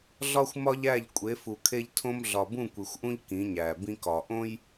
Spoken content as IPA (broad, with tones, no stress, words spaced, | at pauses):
ɮɒ˦xʷmɒ˦ʎæ˦˨ʎ kʷʼe˨˦fu˨kʰe˦ʎtʰõ˦m ɮɒ˨bũ˦˨kʷi˨xʷʔũ˦ʎ kĩ˨˦ɲæ˨bĩ˦kɒ˨ ʔõ˦j